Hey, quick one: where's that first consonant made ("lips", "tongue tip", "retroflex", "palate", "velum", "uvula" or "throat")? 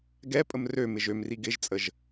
velum